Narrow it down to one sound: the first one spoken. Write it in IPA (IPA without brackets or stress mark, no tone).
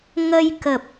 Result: ŋ